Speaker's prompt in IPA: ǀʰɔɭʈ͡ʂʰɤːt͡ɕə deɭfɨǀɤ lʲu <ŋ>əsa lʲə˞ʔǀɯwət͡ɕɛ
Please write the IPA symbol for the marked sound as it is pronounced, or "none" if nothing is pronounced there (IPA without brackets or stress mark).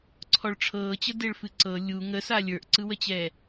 ŋ